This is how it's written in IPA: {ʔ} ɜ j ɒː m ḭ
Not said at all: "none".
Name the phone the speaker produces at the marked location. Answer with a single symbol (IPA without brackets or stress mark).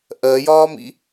ʔ